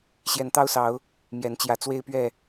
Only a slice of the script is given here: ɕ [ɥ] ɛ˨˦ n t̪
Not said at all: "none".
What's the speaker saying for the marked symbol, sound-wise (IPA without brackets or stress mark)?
j